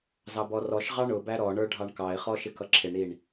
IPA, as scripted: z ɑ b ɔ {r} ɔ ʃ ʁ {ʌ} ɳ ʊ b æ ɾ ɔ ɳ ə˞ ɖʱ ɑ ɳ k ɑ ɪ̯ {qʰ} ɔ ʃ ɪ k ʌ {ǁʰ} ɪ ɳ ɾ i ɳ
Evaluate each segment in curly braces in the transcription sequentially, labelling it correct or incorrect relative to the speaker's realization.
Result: correct, incorrect: ɑ, incorrect: χ, correct

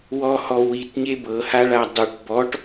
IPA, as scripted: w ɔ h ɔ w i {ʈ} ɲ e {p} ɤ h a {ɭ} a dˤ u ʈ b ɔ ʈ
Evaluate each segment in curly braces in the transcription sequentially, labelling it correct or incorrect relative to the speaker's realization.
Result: incorrect: t, incorrect: b, correct

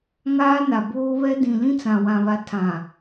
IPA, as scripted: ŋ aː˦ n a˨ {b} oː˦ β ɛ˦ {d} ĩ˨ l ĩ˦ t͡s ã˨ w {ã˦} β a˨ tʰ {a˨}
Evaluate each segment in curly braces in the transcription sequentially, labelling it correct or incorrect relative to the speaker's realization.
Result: correct, correct, incorrect: ã˨, incorrect: ã˨

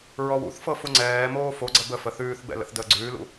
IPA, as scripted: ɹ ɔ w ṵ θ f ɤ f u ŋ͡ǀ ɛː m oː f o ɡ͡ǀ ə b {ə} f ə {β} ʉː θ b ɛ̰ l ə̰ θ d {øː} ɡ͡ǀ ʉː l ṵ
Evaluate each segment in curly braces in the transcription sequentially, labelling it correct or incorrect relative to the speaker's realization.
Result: correct, incorrect: θ, incorrect: əː

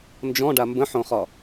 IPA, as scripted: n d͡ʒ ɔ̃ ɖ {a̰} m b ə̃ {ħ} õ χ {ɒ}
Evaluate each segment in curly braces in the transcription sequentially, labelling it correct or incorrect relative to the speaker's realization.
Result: incorrect: a, correct, correct

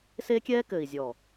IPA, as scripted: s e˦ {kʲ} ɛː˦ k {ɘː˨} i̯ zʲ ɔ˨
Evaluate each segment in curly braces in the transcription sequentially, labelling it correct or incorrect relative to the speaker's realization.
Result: correct, correct

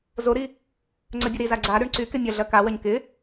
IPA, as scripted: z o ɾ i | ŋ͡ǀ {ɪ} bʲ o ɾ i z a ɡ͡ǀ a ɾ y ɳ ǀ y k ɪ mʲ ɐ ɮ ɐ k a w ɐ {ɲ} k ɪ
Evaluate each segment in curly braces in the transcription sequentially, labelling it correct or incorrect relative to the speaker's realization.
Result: incorrect: ə, correct

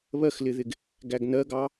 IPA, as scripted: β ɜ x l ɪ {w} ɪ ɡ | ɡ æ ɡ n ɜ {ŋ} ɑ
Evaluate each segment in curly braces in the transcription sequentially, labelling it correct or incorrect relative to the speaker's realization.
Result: incorrect: ð, incorrect: ɡ

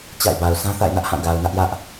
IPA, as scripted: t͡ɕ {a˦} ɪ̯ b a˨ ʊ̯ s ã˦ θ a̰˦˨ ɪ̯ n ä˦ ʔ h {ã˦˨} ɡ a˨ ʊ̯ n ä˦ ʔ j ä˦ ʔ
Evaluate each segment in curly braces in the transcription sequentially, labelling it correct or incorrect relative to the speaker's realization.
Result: incorrect: a̰˦˨, correct

